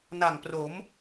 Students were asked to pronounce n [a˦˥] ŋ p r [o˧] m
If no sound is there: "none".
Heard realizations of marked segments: a˨˩, o˩˦

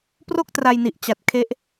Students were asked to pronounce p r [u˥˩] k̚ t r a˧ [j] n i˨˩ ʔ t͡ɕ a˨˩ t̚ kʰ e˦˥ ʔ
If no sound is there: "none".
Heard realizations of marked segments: o˥˩, j

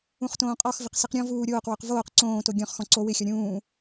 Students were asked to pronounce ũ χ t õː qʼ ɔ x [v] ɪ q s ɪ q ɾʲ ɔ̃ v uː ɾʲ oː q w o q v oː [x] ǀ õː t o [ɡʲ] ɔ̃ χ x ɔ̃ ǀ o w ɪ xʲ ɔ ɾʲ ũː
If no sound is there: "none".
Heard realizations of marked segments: v, q, ɡʲ

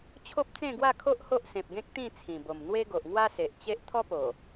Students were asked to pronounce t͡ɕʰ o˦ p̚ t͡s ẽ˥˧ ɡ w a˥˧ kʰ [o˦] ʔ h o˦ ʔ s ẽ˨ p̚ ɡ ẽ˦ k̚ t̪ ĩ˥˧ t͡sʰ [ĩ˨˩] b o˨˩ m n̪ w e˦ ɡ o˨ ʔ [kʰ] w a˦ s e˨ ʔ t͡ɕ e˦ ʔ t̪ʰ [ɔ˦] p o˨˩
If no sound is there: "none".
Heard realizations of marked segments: o˦, ĩ˨˩, ŋ, ɔ˦

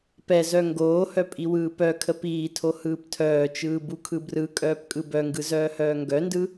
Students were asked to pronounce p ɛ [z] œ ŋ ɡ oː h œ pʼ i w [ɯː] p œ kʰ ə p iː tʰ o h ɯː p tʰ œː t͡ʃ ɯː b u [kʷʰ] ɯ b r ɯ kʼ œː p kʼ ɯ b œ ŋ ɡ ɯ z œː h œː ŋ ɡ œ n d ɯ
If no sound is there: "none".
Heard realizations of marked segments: z, ɯː, kʰ

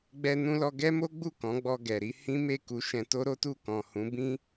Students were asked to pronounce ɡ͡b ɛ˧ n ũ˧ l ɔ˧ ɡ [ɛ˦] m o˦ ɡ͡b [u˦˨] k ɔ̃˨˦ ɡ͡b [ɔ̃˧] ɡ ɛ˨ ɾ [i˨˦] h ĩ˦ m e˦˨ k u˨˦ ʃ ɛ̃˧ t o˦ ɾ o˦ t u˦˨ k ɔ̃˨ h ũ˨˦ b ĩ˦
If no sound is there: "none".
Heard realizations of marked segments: ɛ˦, u˦˨, ɔ˧, i˨˦

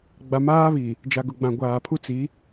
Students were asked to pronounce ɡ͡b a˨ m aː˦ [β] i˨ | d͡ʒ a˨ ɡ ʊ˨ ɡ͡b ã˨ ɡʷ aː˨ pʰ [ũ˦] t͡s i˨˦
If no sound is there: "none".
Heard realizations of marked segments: β, u˦

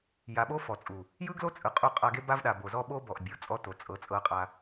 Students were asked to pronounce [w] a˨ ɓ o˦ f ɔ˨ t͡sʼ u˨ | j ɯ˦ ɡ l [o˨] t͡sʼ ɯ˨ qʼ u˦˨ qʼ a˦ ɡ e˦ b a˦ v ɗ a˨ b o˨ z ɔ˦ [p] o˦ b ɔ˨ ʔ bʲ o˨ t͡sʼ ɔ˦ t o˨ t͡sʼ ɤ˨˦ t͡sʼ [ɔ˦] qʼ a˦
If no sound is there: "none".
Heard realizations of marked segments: j, o˦, ɓ, ɤ˦

